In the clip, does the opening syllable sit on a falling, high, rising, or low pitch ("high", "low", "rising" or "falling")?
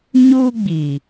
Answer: high